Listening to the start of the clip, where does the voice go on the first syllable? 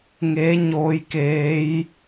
rising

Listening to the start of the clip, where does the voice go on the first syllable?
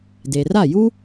low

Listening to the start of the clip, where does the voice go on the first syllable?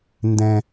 high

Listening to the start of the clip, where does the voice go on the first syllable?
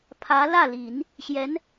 rising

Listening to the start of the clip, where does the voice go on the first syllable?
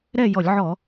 falling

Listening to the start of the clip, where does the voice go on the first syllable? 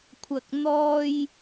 low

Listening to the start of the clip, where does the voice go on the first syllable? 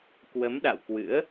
rising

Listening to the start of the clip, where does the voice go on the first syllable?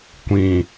low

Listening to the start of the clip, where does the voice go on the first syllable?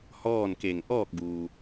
falling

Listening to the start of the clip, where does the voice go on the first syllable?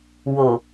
low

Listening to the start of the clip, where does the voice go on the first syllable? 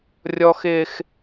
high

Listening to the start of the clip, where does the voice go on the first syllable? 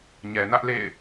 low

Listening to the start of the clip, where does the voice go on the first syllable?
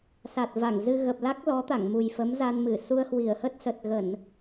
low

